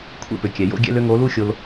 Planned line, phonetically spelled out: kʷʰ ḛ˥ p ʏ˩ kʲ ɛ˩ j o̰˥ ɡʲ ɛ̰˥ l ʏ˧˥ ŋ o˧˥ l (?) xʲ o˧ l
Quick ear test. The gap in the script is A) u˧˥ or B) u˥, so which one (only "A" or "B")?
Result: B